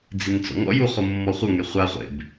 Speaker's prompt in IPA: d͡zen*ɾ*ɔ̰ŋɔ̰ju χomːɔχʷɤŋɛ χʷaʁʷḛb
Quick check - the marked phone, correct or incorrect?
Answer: incorrect